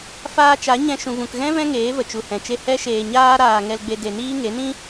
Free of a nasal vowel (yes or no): no